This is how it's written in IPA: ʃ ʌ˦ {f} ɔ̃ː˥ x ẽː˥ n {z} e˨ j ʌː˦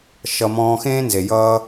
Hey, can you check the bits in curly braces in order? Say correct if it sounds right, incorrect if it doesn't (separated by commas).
incorrect, correct